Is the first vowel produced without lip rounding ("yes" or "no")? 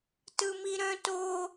yes